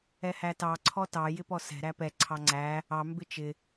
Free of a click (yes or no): no